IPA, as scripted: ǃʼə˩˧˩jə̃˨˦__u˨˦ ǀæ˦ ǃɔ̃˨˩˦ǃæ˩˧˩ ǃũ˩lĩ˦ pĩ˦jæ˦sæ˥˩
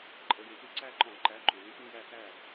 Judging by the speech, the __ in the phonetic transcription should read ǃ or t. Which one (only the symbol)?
t